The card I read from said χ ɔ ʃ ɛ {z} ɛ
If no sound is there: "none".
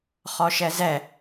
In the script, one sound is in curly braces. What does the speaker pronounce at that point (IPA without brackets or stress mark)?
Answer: z